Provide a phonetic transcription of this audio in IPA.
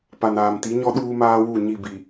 p a˨ n aː˨ m t i˨˦ ɲ ɔ˦ ɗ uː˦ m aː˦ w u˦˨ ɲ i˦˨ b i˨

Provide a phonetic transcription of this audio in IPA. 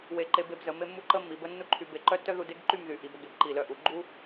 w e˧˩ ǃ e˧ b e˧ b z ə˩˧ m e˥ mː u˥ ǃ ə˥ mː i˩˧ b ə˥ nː u˥ ǃʰ y˧ b e˧ ǃ œ˥ tː œ˥ ð u˧ d e˥ ɡ ǃ y˥˧ m ð y˩˧ ʔ i˩˧ b ə˧ ɡ e˧˩ b ǃ i˧˩ l œ˥˧ ʔ u˩˧ ɡ͡ǃ u˥

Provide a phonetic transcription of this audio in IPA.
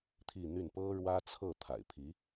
t̪ʰ i˥˧ n̪ y˥˩ n p ɤ˥ ɻ w ä˥ t͡sʰ ɤ˥˩ t̪ʰ a̰˨˩ ɪ̯ pʰ i˧˥

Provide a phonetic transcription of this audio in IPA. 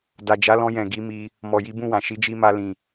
d a˨ d͡ʒ a˨˦ l ɔ̃˧ j ɛ̃˨ ɡ i˨˦ m i˧ | m ɔ˨ j i˨˦ b ũ˦˨ w ã˨ ʃ i˨˦ d͡ʒ i˧ m a˧ l ĩ˨

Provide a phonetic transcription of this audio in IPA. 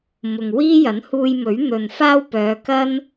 m ʊ˨ ŋ w iː˥ j ɐ˨˥ n h uː˧ j m ɵ˨˥ ɥ n̪ ɵ˨ n f aː˥ w p œː˨˧ k ɐ˥ n

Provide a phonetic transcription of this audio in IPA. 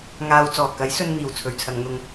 ŋ aː˧ w t͡s ɔː˨˩ k ɐ˨˥ j s ɵ˧ n n̪ iː˨˩ w t͡sʰ ɵ˨ ɥ t͡sʰ ɐ˨˧ ŋ n̪ ʊ˧ ŋ

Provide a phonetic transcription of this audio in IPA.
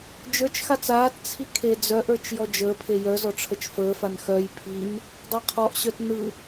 d͡ʒ ə˞ t͡ʃ x a t͡s aː t t͡sʰ i kʰ e d͡z œ ʔ ə˞ t͡ʃ j ɔ d͡ʒ əː pʰ e j œ z ɔ ʈ͡ʂʰ ə t͡ʃ f əː f a n x œ j pʰ i n | dˤ a qʰ ɔ ʔ ɕ œ t n ɯ

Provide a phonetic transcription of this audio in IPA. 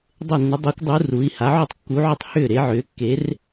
dˤ e˧˩ nː ʏ˩˧ dˤ eː˩˧ kʷ dˤ u˩˧ r u˩˧ i̯ h a˩˧ ʕ u˧˩ tˤ kː u˩˧ ʕ ʏ˧˩ tˤ h ʏː˧˩ ɾ e˩˧ ʕ ʏː˩˧ kː e˩˧ r

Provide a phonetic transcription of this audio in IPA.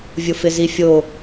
vʲ ʊ f ɪ z i fʲ o

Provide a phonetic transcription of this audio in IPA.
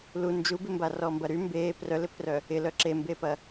l u n d͡ʒ u b ɪ m b a r ɔ m b ɐ ɾ y m b eː p r œ l ɪ pʰ r œ | ɪ l œ ǁ e m b e p ɐ

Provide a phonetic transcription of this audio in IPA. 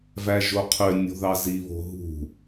v æ ʒ o qʰ ø nʲ o̤ ð ɑ z i β o̤ ɦ ṳ

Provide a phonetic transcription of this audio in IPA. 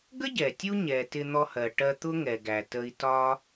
ɡ ə˥ ɟ ɛ˩ tʲ u˧ ɲ ɛ˩ t ɪ˧ n̪ ɔ˧ h ɜ˩ ʈ ɜ˧ t̪ ʊ˥ ŋ ɛ˩ ɡ æ˩ t ə˧ i̯ t ɒ˥

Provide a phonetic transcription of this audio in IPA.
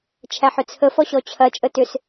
t͡ʃʰ æ ħ ʏ t͡sʰ ə f ɔ ɕ ɔ t͡ɕʰ ɐ t͡ʃʼ ə t ʏ s

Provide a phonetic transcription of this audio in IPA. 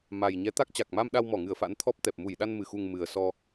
m a˨˩ j ɲ ɛ˨˦ t̪ a˦˥ k̚ t͡ɕ a˨˩ k̚ m a˧ m ɗ a˧ w m ɔ˧˩ ŋ ɨ˧˩ ə̯ f a̰˧˥ n t̪ʰ ɔ˦˥ p̚ t̪ ɛ˨˩ p̚ m u˧˩ j ɗ a˧ n m ɨ˨˩ x u˨˩ ŋ m ɨ˨˩ ə̯ s ɔ˧

